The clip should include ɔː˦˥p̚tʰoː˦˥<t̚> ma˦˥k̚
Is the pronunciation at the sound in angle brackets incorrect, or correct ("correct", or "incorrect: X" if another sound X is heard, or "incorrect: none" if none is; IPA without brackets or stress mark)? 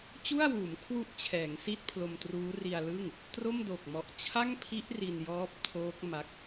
incorrect: k̚